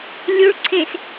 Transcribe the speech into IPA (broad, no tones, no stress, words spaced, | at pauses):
lʲuɭ ǀʰẽs